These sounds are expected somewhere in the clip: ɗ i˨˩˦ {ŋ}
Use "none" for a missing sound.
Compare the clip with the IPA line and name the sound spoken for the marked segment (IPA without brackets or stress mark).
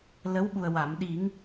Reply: ŋ